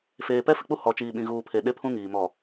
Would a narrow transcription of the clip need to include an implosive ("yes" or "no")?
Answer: yes